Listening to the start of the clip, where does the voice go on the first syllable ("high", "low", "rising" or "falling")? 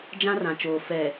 high